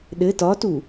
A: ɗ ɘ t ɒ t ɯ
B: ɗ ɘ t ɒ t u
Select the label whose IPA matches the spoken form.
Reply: B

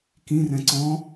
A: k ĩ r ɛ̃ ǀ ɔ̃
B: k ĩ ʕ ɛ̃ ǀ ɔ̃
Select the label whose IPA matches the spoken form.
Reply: A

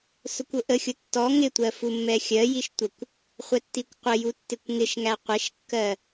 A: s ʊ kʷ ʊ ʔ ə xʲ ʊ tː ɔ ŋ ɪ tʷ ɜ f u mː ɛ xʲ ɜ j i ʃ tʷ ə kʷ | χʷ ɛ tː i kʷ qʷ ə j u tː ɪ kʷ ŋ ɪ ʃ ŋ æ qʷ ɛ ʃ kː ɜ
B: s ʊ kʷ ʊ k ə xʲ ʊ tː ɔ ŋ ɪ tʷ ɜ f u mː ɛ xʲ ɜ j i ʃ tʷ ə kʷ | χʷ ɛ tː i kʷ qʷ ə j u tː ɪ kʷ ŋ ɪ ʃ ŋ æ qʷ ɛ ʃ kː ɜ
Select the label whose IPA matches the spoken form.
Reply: A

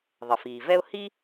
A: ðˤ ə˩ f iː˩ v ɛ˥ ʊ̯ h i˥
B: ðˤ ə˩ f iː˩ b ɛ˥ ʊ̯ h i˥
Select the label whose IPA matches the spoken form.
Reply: A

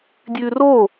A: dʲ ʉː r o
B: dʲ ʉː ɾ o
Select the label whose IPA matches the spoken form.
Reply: A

